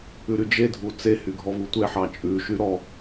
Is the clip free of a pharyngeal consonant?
no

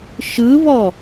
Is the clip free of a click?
yes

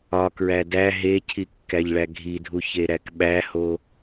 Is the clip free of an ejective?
yes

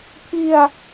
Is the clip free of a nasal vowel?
yes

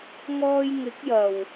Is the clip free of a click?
yes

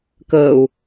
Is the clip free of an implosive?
yes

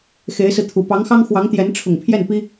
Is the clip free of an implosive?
yes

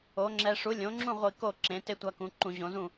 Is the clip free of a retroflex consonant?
no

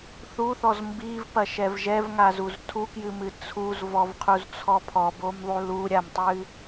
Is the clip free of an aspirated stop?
no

